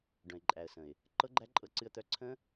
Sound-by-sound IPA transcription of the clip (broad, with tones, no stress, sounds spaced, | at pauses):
ɖ œ̃˨ ɪ̯ ǃʼ æ˨ ə̯ s ə̃˨ ɪ̯ | ǃ ɤ˦ ɡ͡ǃ æ˦ ǃʼ ɤ˧ ǀ ɨ˧ ə̯ t̪ œ˧ ǀʰ ə̃˦